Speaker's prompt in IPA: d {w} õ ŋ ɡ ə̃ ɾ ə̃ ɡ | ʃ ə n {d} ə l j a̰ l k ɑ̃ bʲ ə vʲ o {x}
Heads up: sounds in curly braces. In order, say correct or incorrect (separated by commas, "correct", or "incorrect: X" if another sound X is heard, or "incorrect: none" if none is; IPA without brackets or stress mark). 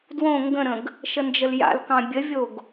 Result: correct, incorrect: d͡ʒ, incorrect: ɡ